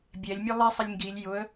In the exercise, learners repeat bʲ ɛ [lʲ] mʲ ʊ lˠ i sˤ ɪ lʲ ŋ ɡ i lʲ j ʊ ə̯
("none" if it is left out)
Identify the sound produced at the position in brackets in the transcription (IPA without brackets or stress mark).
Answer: lʲ